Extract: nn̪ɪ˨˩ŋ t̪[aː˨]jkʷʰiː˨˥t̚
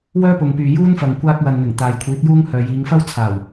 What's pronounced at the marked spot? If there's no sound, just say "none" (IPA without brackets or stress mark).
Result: aː˨